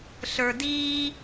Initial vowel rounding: unrounded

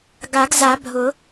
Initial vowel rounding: unrounded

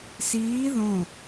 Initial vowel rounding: unrounded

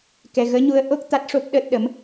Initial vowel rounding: unrounded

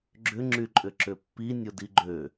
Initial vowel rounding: rounded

